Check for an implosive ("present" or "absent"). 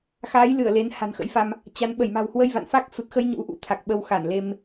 present